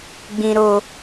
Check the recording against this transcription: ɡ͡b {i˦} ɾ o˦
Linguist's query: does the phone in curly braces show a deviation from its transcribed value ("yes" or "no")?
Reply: yes